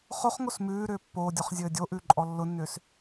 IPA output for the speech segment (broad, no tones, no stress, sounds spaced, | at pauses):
χ o χ ŋ o s m ʉː ɾ ʏː pː oː dʲ ɔ χ zʲ ɘː dʲ o ʔ ʉ ǃʼ ɔ lː ʊ nː ʏː s